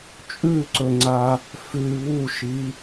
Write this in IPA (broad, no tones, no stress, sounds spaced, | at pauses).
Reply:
t͡ʃʼ ʉ ǀ ɵ ŋ͡ǀ a | f ʉ β u ʃ i